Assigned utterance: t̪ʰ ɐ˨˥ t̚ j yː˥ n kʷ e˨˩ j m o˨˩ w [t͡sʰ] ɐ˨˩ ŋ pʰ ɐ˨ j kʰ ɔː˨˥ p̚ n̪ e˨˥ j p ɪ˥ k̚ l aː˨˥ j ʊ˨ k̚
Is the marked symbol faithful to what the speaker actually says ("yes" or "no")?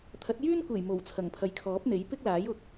yes